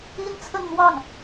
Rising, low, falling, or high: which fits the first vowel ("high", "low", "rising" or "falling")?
high